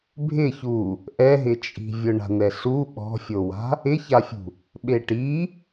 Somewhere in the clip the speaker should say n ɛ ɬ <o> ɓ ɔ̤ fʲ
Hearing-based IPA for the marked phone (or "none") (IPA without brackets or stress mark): u